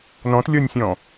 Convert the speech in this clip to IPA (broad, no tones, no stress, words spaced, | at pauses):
nɔ̃tlʲɔnʲsʲɔ̃